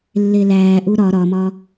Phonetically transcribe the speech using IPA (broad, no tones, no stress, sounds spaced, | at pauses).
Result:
lː e l æː ʔ u ɾ ɒ ɾ ɒ m ɒ